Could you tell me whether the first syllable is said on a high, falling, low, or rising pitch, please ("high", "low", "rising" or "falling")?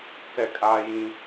falling